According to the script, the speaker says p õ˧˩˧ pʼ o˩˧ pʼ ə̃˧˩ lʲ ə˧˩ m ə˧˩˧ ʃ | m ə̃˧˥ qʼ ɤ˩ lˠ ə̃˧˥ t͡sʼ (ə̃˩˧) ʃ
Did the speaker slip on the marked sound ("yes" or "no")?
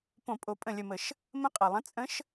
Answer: yes